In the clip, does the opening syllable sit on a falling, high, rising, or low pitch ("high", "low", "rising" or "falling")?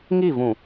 falling